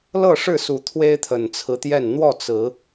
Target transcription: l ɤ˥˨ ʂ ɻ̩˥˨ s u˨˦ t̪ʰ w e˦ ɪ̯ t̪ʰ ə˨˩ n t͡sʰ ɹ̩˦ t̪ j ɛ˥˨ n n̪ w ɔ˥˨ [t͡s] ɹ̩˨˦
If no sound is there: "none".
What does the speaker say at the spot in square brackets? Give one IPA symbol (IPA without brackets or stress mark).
t͡s